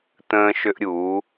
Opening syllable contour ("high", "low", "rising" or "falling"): high